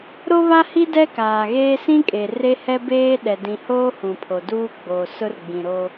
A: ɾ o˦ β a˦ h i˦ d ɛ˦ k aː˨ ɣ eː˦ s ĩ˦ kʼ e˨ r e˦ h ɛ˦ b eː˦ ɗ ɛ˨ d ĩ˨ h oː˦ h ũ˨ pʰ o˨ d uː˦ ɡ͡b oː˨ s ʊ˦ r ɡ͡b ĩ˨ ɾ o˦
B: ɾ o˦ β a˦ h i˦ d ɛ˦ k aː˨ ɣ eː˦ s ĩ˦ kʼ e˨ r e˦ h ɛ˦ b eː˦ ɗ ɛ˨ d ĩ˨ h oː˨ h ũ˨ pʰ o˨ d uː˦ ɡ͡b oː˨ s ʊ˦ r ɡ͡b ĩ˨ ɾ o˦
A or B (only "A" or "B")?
A